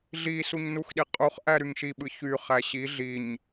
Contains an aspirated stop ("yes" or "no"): no